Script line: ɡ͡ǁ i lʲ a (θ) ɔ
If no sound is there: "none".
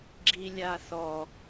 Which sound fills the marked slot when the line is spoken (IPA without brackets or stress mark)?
θ